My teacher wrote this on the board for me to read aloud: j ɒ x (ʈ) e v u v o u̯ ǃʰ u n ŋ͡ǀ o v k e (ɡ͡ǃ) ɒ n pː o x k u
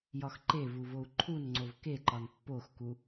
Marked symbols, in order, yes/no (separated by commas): no, no